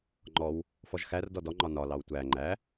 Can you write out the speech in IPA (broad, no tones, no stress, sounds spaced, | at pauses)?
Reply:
ŋ͡ǃ ɔ w | f ɔ ʒ x æ r d ɔ d ɔ ŋ͡ǃ ɒ n ɒ l ɑ w tʷ æ ŋ͡ǃ æ